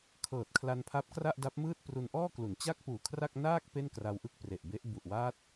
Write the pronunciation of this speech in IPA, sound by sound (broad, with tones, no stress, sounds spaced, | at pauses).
kʰ ɤː˨˩ t̚ kʰ l a˧ n pʰ a˦˥ p̚ k r a˥˩ ʔ d a˦˥ p̚ m ɯː˥˩ t̚ p r u˧ n ʔ ɔː˥˩ k l u˩˦ n t͡ɕ a˥˩ k̚ p uː˨˩ kʰ r a˥˩ k̚ n aː˥˩ k̚ p e˥˩ n k r a˧ w ʔ ɯ˥˩ k̚ p r e˨˩ ʔ b e˦˥ ʔ b u˨˩ ʔ w aː˦˥ t̚